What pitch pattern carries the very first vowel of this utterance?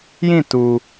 falling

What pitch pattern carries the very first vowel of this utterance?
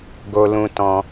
high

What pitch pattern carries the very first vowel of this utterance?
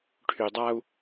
low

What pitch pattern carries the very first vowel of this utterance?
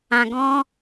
low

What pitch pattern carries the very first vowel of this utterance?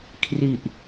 low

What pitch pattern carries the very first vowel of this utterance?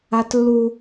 high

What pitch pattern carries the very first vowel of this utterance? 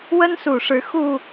high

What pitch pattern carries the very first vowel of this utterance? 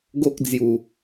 high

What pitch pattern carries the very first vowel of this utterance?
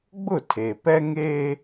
falling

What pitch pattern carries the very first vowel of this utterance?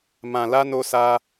low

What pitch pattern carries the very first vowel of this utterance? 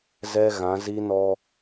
high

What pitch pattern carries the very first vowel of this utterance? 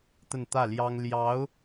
falling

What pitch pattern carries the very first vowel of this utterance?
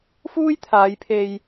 high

